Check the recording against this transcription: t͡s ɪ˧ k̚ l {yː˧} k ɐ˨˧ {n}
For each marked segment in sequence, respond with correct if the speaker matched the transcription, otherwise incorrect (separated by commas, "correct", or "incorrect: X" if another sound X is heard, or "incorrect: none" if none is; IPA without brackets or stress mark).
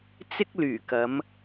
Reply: incorrect: yː˨˩, incorrect: m